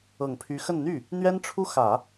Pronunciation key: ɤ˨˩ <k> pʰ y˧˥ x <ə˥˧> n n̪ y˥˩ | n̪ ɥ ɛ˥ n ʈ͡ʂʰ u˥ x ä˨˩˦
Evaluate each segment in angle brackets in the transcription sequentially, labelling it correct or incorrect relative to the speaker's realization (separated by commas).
incorrect, correct